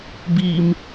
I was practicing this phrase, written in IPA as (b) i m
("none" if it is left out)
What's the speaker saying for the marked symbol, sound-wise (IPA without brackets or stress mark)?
b